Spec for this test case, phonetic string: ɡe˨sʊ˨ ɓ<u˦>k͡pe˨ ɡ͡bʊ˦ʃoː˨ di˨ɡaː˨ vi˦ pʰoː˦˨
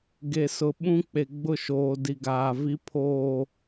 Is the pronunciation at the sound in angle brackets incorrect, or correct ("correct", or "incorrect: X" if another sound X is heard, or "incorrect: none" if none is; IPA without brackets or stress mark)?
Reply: incorrect: ũ˦